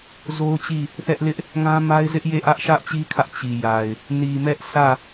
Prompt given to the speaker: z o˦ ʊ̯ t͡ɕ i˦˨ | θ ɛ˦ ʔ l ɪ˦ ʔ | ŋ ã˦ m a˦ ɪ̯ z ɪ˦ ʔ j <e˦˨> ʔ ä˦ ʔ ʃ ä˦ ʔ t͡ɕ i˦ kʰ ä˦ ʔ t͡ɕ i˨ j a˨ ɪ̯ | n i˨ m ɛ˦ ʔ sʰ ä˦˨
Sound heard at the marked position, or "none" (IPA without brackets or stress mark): e˦˨